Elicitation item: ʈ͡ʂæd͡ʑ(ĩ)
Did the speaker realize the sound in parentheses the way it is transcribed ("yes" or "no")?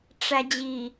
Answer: no